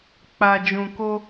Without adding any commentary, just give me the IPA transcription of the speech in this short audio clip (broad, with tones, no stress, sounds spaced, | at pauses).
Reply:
k͡p a˨ d͡ʒ ũ˨ k o˧